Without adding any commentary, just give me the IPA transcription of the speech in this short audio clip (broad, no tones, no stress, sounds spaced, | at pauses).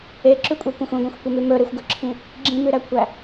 e ǁ ʉ kʷʼ ɛ kʷ ẽ xʷ ĩ ɡʷ ẽ xʷ kʷ e m ʉ m ɵ ɾ e xʷ ɡ ɵ ǁʰ ĩ | ɡ͡ǁ ĩ m ʉ ɾ æ kʷʰ æ